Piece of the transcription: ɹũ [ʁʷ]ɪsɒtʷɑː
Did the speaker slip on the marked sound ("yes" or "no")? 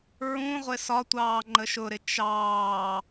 no